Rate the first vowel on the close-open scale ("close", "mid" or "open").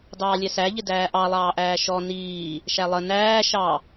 open